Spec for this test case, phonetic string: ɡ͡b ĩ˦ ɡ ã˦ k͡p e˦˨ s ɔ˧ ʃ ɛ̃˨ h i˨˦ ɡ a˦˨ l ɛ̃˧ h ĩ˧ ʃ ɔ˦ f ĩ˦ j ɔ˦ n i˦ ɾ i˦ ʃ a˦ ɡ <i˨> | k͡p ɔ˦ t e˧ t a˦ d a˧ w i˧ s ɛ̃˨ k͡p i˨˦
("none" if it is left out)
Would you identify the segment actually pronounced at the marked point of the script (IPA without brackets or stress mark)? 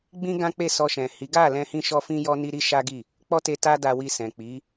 i˦˨